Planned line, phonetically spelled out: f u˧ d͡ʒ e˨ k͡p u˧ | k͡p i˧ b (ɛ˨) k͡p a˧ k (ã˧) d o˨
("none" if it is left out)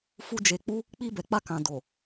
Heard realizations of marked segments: ɛ˨, ã˨

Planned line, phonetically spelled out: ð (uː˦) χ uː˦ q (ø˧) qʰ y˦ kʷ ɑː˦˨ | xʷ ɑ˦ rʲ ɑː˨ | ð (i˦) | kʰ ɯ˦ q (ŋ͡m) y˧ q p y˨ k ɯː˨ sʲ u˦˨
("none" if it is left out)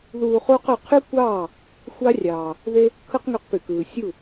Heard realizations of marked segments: uː˧, ø˧, e˦, ŋ

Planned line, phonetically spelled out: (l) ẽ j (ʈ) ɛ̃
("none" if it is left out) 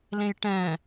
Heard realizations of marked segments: l, ʈ

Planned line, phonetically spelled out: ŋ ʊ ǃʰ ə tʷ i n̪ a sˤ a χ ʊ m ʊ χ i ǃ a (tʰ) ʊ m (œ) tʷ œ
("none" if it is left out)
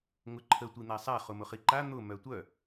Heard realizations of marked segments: n̪, œ

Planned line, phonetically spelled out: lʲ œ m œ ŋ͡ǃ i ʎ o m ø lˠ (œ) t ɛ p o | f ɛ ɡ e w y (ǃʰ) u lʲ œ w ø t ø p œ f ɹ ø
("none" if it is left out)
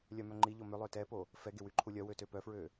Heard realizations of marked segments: ø, ǃʰ

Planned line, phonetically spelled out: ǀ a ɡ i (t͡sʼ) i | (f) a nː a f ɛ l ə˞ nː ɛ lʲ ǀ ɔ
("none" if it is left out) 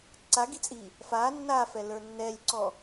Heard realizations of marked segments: t͡sʼ, f

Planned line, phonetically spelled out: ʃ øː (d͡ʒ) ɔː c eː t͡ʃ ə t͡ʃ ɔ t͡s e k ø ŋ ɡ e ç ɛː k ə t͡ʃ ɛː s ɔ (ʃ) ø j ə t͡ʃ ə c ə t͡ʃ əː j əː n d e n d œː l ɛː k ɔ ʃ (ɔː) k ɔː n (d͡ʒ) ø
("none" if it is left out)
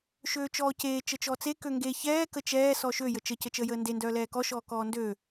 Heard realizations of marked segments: t͡ʃ, ʃ, ɔː, d

